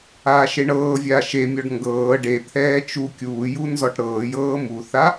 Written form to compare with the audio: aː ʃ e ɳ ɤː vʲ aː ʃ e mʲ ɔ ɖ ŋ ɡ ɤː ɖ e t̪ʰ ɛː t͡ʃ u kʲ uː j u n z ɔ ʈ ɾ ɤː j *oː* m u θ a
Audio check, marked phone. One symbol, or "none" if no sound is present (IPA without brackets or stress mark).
ɤː